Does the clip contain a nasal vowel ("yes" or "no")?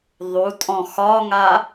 yes